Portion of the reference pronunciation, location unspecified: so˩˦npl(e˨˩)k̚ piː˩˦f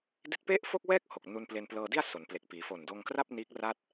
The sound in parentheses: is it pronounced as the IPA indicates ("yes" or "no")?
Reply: yes